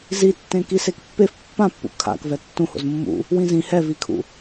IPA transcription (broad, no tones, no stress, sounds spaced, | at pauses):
z i tː ẽ k i s e k pː e f pː ã pː ṵ kʰ a̰ k v ɛ tː ũ h o̰ z mː ṵ | w ĩ z ĩ h ɛ v i kʰ ṵ